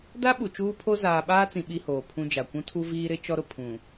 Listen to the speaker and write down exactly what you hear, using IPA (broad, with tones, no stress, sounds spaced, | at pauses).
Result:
d a˦ ɓ u˨ t͡ʃ uː˦ pʰ o˦ z aː˨ ɓ aː˦ t͡s ĩ˨ ɓ i˦ h oː˨ pʰ ũ˦ d͡ʒ a˨ kʷ ũ˦ tʰ u˦ v iː˦ ɾ ɪ˦ t͡ʃ ɔ˦ ɾ ʊ˨ pʰ ũ˨